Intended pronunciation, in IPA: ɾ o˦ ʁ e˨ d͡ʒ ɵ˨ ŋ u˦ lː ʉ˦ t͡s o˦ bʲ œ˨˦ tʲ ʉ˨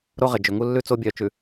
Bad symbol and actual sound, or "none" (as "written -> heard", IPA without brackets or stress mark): tʲ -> t͡ʃ